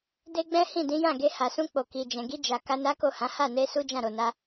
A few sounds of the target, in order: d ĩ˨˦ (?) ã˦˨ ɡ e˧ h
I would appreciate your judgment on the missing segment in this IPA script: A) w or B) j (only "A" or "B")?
B